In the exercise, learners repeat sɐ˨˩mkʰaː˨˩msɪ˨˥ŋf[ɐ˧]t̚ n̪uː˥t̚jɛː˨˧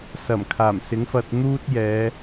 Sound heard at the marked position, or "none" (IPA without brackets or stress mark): ɐ˧